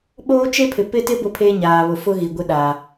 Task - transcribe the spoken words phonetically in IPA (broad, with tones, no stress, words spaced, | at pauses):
ɓoː˦t͡ʃe˦pʰɪ˨ pɪ˦tɪ˦ bʊ˦pʰeː˦ɲaː˨βʊ˨ fʊ˦ɣi˨ ɡʷɪ˦ɗaː˨